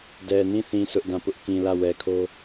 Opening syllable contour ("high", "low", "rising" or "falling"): low